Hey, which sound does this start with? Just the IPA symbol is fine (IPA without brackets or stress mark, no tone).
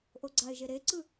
ʔ